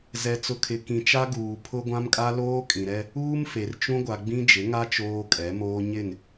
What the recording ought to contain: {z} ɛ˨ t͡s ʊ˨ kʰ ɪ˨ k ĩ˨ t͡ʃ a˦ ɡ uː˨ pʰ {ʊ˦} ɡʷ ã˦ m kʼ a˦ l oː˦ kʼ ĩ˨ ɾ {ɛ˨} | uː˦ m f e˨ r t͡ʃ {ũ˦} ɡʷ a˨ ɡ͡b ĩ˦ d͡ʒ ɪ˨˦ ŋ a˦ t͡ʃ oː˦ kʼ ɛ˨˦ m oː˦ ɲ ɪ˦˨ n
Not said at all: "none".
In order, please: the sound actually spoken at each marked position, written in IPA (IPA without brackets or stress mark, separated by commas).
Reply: z, ʊ˦, ɛ˦, ũ˦